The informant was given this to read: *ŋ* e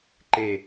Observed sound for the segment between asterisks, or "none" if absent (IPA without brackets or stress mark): ǃ